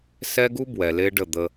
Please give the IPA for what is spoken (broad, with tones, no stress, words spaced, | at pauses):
sɛ˦ɡu˦ bwɛ˨le˦ɖə˦˨d̪ə˦